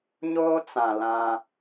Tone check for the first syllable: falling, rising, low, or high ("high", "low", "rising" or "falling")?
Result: high